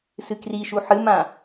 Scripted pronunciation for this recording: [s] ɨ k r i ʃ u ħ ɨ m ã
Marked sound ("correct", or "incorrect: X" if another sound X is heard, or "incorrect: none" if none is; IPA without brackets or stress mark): correct